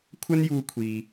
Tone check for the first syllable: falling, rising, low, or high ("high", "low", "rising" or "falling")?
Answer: high